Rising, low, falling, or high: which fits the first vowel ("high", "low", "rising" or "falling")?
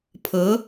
rising